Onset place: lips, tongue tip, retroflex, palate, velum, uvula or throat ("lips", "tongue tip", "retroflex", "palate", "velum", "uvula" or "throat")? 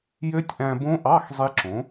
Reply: palate